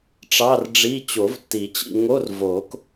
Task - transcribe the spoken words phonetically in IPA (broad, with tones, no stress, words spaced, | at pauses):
ʈ͡ʂɑ˧˥˧rɖ͡ʐi˧˥˧ t͡ɕo˨˩˦vtːi˨˩˦t͡ɕḭ˦˨ŋo˧˥˧r vo˨˩˦k